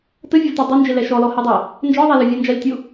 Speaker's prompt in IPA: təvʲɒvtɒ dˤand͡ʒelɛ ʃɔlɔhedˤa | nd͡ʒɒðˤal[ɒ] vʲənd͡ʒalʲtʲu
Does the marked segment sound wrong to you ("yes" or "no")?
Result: no